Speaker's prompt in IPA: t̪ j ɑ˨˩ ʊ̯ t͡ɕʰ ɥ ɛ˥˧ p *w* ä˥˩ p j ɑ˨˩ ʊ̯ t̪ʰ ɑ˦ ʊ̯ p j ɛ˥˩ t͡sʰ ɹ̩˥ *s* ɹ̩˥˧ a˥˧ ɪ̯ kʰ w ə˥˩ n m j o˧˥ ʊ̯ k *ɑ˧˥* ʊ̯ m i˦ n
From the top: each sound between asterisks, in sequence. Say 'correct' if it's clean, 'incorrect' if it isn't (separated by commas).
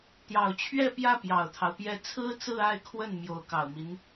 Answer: incorrect, incorrect, incorrect